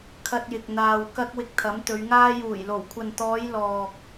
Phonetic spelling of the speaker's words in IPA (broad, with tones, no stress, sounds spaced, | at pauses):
kʰ ɐ˧ t̚ j ɪ˨ k̚ n̪ aː˨ w k ɐ˧ k̚ w ɪ˧ k̚ t̪ʰ ɐ˨˥ m t̪ ɵ˨˧ ɥ ŋ aː˥ j uː˨˩ j l o˨˩ w kʷʰ ɐ˨ n t̪ ɔː˨˧ j l ɔː˨ k̚